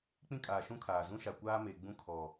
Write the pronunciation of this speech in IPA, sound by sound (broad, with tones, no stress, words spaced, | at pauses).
k͡pĩ˦kʼaː˨ʃũ˦kʰaː˨ zũ˦ʃa˨ kʷaː˦me˨ ɡ͡bũ˦kʰɔ˨